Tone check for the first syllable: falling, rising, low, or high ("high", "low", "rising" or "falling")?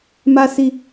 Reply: high